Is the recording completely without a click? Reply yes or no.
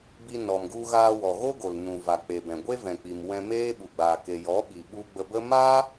yes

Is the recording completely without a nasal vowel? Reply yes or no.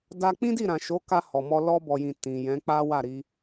no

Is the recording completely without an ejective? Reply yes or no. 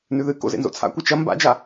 yes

